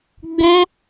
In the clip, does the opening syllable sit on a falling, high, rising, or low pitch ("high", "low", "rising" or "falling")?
high